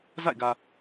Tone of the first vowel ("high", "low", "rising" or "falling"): falling